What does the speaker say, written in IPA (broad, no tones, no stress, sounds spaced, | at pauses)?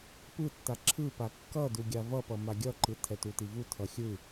p ɯ tː a ǁʰ ɯ p a kː ʌ d u ɡʲ a v ʌ p ʌ m a ɡʲ ʌ ǃ ɯ tʰ ɛ t u t i v u tʰ ʌ xʲ ɯ